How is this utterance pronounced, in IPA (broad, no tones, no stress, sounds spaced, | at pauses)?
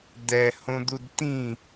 d̪ ɛ h õ d̪ u d t̪ ĩ